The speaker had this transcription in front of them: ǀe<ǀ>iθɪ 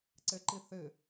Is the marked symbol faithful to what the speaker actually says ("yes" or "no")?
no